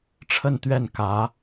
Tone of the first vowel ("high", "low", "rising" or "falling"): falling